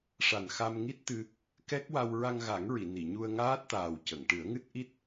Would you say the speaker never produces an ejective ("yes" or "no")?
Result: yes